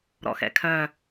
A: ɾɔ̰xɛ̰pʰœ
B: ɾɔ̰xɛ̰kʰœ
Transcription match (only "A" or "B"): B